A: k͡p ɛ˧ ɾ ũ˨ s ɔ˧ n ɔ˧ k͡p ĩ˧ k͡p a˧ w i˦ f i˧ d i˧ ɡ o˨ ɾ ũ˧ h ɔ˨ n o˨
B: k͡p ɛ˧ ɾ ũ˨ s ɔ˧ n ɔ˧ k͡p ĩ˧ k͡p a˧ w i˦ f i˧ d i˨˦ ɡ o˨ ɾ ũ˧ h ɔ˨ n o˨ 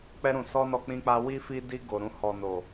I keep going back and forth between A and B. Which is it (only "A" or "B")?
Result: A